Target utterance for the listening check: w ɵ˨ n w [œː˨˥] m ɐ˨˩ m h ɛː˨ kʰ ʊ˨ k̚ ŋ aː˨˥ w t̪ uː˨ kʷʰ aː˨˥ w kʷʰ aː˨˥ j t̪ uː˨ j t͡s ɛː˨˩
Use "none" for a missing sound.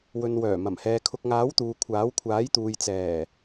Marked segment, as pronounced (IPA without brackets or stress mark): œː˨˩